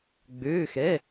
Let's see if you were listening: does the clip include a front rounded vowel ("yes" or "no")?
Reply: yes